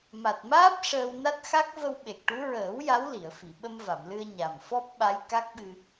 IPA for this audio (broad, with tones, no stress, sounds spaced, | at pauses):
m a˨˩ t̚ m aː˦˥ p̚ ʂ əː˧ w n a˦˥ t̚ x a˦˥ k̚ v ə˧ w ɓ e˨˩ k̚ ʈ u˧˥ ɹ əː˨˩˦ w j a˧˥ w l i˨˩˨ ə̯ f i˨˩˨ ɓ ə˧ m v a˨˩˨ m l ɨ˧ ə̯ ɲ a˨˩ m f ɔ˦˥ p̚ ɓ a˧˥ j k a˦˥ k̚ ɓ ɨ˧